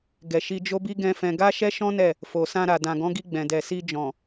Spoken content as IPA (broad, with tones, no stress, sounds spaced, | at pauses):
ɡ ɛ˨ ʃ i˧ d͡ʒ o˦ b i˦ ɡ ɛ̃˦ f ɛ̃˧ ɡ a˦ ʃ ɛ˦ ʃ ɔ̃˦ n ɛ˦˨ | f o˨ s ã˧ ɾ a˨ d ã˨ ɡ ɔ̃˨˦ ɡ i˧ ɡ͡b ɛ̃˨ d ɛ˨ s i˧ d͡ʒ ɔ̃˨